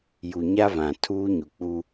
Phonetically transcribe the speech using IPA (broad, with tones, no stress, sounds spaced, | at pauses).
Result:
j u˨ ɲ a˦ v ã˨ tʰ uː˦ ɲ u˨ k͡p u˦